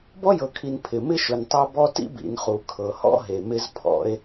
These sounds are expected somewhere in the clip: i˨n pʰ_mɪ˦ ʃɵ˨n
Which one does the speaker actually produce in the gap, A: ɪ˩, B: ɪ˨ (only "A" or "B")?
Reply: A